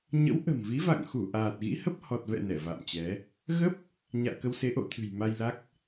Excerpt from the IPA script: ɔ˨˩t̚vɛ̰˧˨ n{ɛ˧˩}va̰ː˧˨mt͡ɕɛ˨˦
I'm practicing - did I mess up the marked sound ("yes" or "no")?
no